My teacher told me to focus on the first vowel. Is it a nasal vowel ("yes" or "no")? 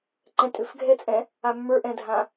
yes